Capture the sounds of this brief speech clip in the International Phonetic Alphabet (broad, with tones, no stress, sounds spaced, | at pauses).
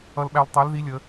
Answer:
ʌ˧ l ɓ æ˧ l tˤ æ˨˥ l ð i˨˥ lʲ ə˩˧